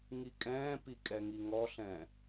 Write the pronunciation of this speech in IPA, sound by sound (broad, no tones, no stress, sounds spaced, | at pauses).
ŋ i kʼ ɛ̃ː p i kʼ ɛ ŋ i ŋ ɔ ɬ ɛ̃